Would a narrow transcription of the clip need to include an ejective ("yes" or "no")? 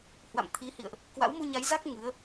no